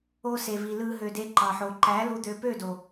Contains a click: yes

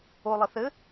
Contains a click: no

